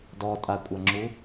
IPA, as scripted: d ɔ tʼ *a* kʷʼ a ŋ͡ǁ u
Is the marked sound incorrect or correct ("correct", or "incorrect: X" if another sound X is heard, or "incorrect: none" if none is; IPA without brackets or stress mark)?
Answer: correct